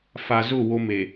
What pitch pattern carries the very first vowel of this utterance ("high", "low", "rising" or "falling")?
low